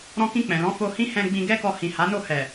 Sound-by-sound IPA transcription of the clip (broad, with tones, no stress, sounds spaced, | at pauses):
ɾ ɔ̃˧ k ĩ˧ k͡p ɛ̃˨ l ɔ̃˨˦ f o˧ h ĩ˦ h ɛ̃˧ ɡ͡b ĩ˧ ɡ ɛ˦ k ɔ˧ h ĩ˨ h a˨˦ n o˦˨ h ɛ˨